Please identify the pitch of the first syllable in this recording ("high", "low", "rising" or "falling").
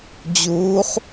rising